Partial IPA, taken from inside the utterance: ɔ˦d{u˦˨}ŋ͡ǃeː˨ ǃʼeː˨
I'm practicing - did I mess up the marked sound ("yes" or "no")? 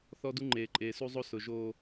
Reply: yes